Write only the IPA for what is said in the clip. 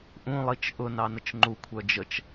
ʔũlˠit͡ʃ ʔʊnɑnət͡ʃ ŋ͡ǃukʷʰœ d͡ʒət͡ʃ

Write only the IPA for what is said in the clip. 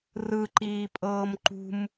rɯǃiːpʼɤːm ǃṳm

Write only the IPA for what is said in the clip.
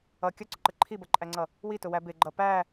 ʌ kʲʌǀʊǃə ǃʰibʌǃʼæŋ͡ǀʌ | witʊwæ bɪɡ͡ǃʌ pæ

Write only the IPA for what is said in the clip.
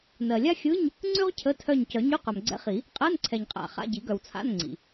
nɜ˨lʲa˥ xʲɯ˧˥˧ɲ | ŋ͡ǀʉ˥ʁ cʰə˧˥˧tʰœ˦˨ɲ cœ˨˩˦ ɲʉ˧˥˧qœ˨mɡ͡ǀɛ̰˧˥χi˨˩˦ | qʼɜ˧˥˧nǀʰɛ˨ɲqʼa̰˨˩˦ χa̰˧˥˧ɟi˨˩˦ɡœ˨w t͡sʰa̰˧˥˧n ŋ͡ǀḭ˨

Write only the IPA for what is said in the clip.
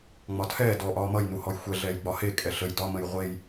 ŋ͡mɒtʰɛː dɔ ʔɒːmʌjnuhɔj xʷɛɮɛːjɡ͡bɒ hekʼɛ ɬəj dɒmə̃j ʁʷej

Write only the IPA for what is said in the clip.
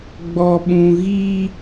ɡ͡bɔ˨ɓũ˨ɣi˦

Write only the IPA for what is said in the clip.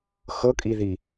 xɤkʼiði

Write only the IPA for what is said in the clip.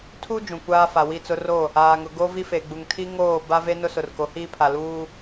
tʰu˦ d͡ʒũ˨kʷaː˦fa˨ wi˦˨t͡sʊ˦ ro˦˨ | aː˨ŋʊ˨ ɡo˦vi˦fe˨ɡ͡bu˨ŋ tʰi˦ ŋoː˦˨ ba˦ve˦ nʊ˦sʊ˨rko˨˦hiː˦ pʰa˨luː˦

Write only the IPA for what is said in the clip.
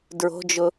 dɹo̤d͡ʒʊ

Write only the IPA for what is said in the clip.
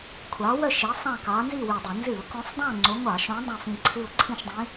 kʷʰɑ˨˦wœ˦˨ ʃi˨˦ sˤɑ̃˦˨kɑ˨˦ nzi˦˨wy˨˩dˤɨ˧˩˧ nzɨ˧˩˧ʊ̯kõ˨˦sˤdˤõ˦˨ ŋ͡ǀo˨˦ ŋʷɑ˧˩˧ʃõ˨˦ dˤã˦˨fĩ˦˨ǀʰɨ˦˨ʊ̯ ǀʰĩ˦˨ʃdˤĩ˨˦

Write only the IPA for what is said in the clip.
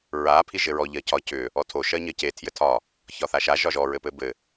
ɹa pʰiʒɘɹɔ ʎɜcʰɒ cʏ | ɔtʰo ʃɜɲɜce tʰjɘtʰɒ | çɒθaʃa ʒɒʒɔ ɹɘpɘbɘ

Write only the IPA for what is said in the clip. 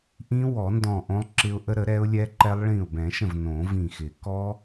ʔĩ˦˥ wɔ˨˩˦ndɔ̃˧˩ ʔõ˦˥lˠǁɪ˦˥ʊ̯ʔə˦˥ ɾə˨˩˦ɾɛ˦˥ʊ̯lʲɛ˦˥ǃɛ˦˥lˠ ɭĩ˧˩ʊ̯bɛ̃˨˩˦ʃə̃˧˩v nõ˨˩˦vĩ˧˩xɪ˨˩˦ kɔ˦˥

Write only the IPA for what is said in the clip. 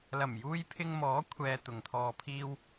lɐ˨˩mjuː˧jpʰɪ˧ŋ mɔː˨˥kʷʰɛː˨ t̪ʊ˨ŋt̪ʰɔː˧pʰiː˥w

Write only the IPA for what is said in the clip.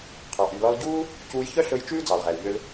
qʰɑ˩ʔy˩lɔ˧l ɟuː˥ | cuː˧jçœ˥ɬɵ˧j t͡ʃʉː˥ d͡zɑ˩lʁɛ˩lʎø˧l

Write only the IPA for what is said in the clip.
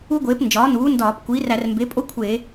u˥ɡʷeː˩˥p nd͡ʒɒː˩˥nuː˩˥ndɒː˧˩˧p kʷiː˩˥ræ˧˩˧r mbe˩˥pʼo˥ kʷʰeː˧˩˧

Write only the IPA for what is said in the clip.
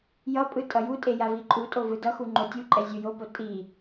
jʌpʼɯ tʼʌjutʼe javiǃʼutʼo vɯdʌxu ŋ͡ǃotʲuǃʼɛ zʲujopo tʼi

